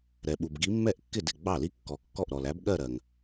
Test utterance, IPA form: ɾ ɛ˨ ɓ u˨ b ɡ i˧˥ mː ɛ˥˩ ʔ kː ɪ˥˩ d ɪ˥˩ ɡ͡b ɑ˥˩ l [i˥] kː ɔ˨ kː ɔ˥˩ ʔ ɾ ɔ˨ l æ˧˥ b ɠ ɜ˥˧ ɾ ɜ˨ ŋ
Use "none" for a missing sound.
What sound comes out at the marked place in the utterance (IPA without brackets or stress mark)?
i˥